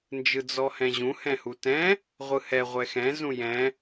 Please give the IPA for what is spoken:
n d͡ʒ ɯ d͡z ɔ h ɛ̃ ʑ ũ h ɛ̃ h u t ɛ̃ | ʁʷ ɯ h ɛ ʁʷ ɛ x ɛ̃ z ũ j ɛ̃

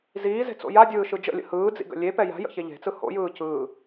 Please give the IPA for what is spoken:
z iː z e̤ t͡s o̰ j a dʲ ɯː ʃ ɯ d͡ʒ ə̰ lʲ ə̰ h ɯː d͡z ḭ ɡ ə̰ lʲ e p ɛ j a̤ j ə̰ ç e ʎ e̤ t͡s ɯ h o̰ j ɯː c ɯː

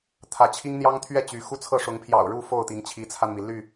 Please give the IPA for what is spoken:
t̪ʰ ä˨˦ t͡ɕʰ i˦ ŋ n̪ j ɑ˦ ŋ t̪ʰ ɥ ɛ˥˨ t͡ɕ y˨˦ x u˦ t͡sʰ ɤ˥˨ ʂ ʊ˨˦ ŋ pʰ j ɑ̰˨˩ ʊ̯ ɻ u˥˨ f o˥˨ ʊ̯ t̪ i˨˦ ŋ t͡ɕʰ i˨˦ t͡sʰ a˧ n m i˩ l y˥˨

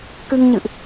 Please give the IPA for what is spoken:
k ɨ˧ ŋ ɲ ɨ̰˧˨ ʔ

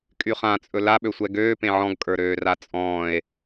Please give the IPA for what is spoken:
kʼ y χ ã t͡sʼ ɵ l a ɓ ø sʷ ɛ ɡ øː p ẽ ʕ ɔ̃ ɡ kʼ ə˞ ɾ øː r a t͡sʼ ɔ̃ː e̯

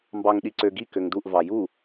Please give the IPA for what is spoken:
m b ɑ ŋ ɗ i ǀ ø ɡ i k ø ŋ d u ʔ v ɑ j u

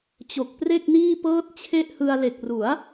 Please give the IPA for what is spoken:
t͡ɕ o˨˩ k̚ p r e˥˩ k̚ n iː˥˩ p ɤː˥˩ t̚ t͡ɕʰ e˥˩ ʔ h ɯ˧ a̯ l e˨˩ k̚ r u˩˦ a̯

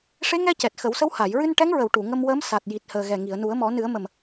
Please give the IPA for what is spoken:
ʂ e˧˥ ŋ ɛ˧ c ɛ˨˩ t̚ x ə˨˩˦ w s ə˧˥ w h a˨˩˨ j ɹ ɨ˧ n ʈ ɛ˧˥ ŋ ɹ ə˨˩˨ w ʈ u˨˩˨ ŋ ə˧ m w əː˧˥ m s a˨˩ t̚ j i˨˩ t̚ h əː˨˩ ɣ ɛ˨˩ ŋ i˨˩˨ ə̯ n u˨˩˦ ə̯ m ɔ˨˩˦ n ɨ˨˩˦ ə̯ m ə˨˩ m

